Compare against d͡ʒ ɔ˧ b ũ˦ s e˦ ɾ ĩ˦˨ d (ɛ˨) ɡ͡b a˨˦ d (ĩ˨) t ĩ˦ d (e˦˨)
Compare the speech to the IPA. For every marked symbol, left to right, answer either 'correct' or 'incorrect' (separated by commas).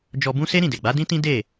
incorrect, incorrect, correct